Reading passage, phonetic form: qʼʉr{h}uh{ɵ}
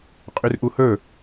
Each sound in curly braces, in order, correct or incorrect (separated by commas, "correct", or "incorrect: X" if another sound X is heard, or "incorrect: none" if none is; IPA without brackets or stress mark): incorrect: ʔ, correct